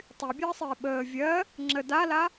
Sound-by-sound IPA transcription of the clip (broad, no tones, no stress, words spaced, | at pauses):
tˤybʲəːsˤɪː ɓəː vʲɜ | ŋ͡ǁə dala